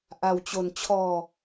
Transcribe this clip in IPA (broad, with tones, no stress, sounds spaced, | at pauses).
ʔ a˧ w t͡ɕ o˧ n t͡ɕʰ ɔː˧